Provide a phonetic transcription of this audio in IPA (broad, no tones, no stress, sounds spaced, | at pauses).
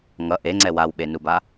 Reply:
ŋ ʌ ʔ e ŋ͡ǀ ɛ w a w ɓ e n u b a